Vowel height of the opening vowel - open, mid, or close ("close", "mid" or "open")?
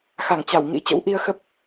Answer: open